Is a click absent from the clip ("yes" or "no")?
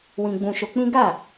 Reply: yes